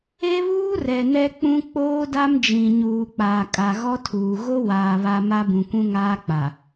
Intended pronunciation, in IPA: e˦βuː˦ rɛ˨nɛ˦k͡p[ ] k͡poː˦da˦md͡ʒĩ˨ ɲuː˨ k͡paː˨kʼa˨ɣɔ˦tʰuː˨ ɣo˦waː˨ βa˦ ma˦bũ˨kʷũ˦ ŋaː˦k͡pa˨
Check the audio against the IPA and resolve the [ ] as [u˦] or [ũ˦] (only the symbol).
ũ˦